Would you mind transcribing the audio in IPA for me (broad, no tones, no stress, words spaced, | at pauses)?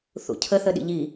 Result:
θṵcʰəθəɗḭ ʎi